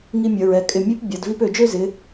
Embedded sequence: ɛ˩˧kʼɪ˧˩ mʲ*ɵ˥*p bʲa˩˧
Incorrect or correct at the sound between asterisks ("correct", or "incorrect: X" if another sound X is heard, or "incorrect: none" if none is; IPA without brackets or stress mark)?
incorrect: ø˥